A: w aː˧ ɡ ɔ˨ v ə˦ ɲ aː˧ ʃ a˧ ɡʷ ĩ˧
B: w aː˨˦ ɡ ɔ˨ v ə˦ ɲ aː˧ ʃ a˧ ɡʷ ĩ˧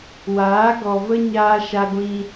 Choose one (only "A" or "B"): B